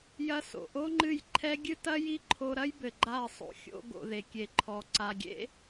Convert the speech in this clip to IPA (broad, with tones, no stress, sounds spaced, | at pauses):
j ɐ˧ s o̰˨ ʔ o˦ ŋ͡ǃ ɨ˦˨ j ǃʰ ɛ˦ ɡʲ ɨ˦ t ɐ˦ j i˦ ǃʰ o˧ ɾ ɐ˦ j b ɘ˨ ɡ͡ǃ a˦˨ ɐ̯ sˤ o̰˨ xʲ o̰˧ ɡ o̰˨ ð e˨ kʲ e˨ ǃʰ ɔ˨ ǀ a˨ ɡʲ ḛ˦